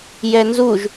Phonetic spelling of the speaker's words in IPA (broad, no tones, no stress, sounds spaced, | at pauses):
j ɛ n z u ʒ